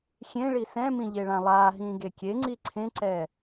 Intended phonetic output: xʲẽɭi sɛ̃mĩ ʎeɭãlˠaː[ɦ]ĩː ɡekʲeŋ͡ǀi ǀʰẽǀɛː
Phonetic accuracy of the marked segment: correct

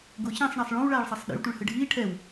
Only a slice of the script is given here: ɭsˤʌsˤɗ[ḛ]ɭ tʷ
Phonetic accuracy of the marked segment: correct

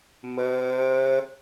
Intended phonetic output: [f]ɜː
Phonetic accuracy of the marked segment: incorrect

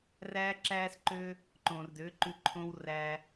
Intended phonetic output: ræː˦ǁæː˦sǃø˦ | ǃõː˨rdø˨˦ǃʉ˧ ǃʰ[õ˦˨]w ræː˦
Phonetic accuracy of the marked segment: incorrect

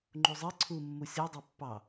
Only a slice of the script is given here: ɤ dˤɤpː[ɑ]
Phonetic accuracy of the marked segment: correct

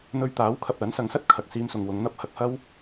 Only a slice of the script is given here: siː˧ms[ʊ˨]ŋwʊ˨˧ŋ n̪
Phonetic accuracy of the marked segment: correct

